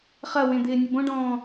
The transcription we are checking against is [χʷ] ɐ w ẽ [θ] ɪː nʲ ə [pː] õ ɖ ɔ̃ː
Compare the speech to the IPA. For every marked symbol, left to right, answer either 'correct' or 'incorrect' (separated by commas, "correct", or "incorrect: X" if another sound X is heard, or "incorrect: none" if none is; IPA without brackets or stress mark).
incorrect: χ, incorrect: d̪, incorrect: b